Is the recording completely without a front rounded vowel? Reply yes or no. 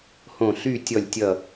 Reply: no